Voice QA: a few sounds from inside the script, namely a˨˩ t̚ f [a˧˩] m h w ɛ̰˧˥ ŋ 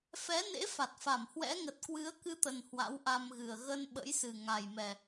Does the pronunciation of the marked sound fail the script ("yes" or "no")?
no